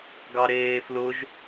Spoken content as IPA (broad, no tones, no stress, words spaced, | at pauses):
ɡɑɾeːflʊʒ